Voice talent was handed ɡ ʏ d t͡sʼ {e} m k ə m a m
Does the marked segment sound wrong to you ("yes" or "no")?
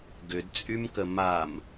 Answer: yes